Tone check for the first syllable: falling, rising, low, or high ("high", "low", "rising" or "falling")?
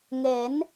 rising